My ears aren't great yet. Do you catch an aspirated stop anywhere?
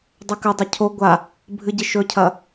yes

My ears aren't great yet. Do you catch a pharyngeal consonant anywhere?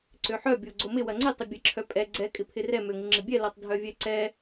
yes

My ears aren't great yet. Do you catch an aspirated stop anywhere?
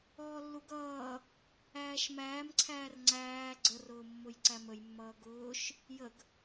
yes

